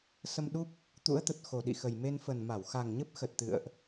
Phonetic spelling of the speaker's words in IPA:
sə˧mɗu˦˥p̚ | t̪ṵ˧˥ə̯t̪ə˨˩t̚ xo˨˩ɗḭ˧˨xə˨˩j me˧nfə˨˩n ma˧˩wxa˨˩ŋɲə˦˥p̚ xə˨˩t̚t̪ɨ̰˧˨ə̯ʔ

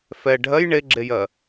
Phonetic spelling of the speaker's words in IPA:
fɛ ɖʱɜj ɳeɡ͡ǁejɜ

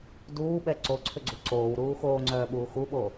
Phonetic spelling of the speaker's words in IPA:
duːɓɛ ǀoǀʰʏɡ͡ǀu ǀoːwɾuː xoːŋ͡ǀœːɓuː xuɓo

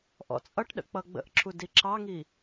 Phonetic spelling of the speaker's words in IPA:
ʔɔ̰t͡sʼʌʈɗə̰ k͡pʌɡ͡bə̰ʔǁʰu diǁɑŋi

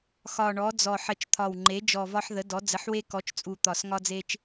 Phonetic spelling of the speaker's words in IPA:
xɒ˨˩ɳɔ˩˥d͡zɔ˨˩ ħə˨˩t͡ʃt̪ʰɒ˨˩wŋ͡ǃe˩˥ d͡ʒɔ˨˩vɒ˧ħðə˩˥dɔ˩˥ d͡zə˩˥ħwe˧kɔ˩˥t͡ʃt͡sʼu˨˩ t̪ɒ˨˩s ŋɒ˧d͡ze˧t͡ʃ

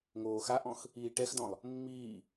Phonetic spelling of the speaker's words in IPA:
ŋoːxaʔɔ̃x | iːʈɛxdɔ̃lˠ | mːiː

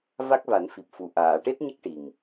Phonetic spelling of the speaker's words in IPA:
va˦˥k̚va˨˩˦n fi˨˩p̚fu˨˩˨ ʔaː˨˩˨ ʈe˦˥t̚ɲə˦˥k̚ ʈi˨˩ŋ

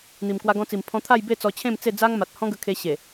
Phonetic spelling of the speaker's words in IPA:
n̪i˨˩mkwa˧ɡɔ̃˧t͡si˨˩m pʰɔ̃˧t̪ʰa˥˧jbe˥˧ t͡sɔ˧ t͡ɕʰẽ˥˧m t͡se˥˧d͡za˦ŋma˨t̚ hɔ̃˦ɡə˧kʰe˧ɕe˨˩

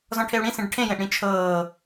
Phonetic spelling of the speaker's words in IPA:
zɔ̃ʈʰeu̯ɽĩ sĩɖʈʰẽ jẽʔɽĩt͡ʃʰɤː

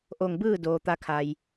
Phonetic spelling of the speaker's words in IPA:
ʔo˧˩ŋbɯː˥˨ doː˩t̪a˧˥kʰa˩j

